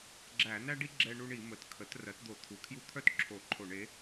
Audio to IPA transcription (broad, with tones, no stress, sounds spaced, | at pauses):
ɡ͡ǁ æ˧˩˧ n æ˦ ɖ i˦ ɡ͡ǁ ɛ˦ ɳ u˦ ɳ i˧˩˧ m ə˩˥ t kʰ ə˩˥ t r ɜ˩˥ t d̪ o˧˩˧ t̪ʰ u˩˥ kʰ j u˦ t̪ʰ œ˦ t ǁʰ o˧˩˧ ǃʰ o˧˩˧ ɳ e˩˥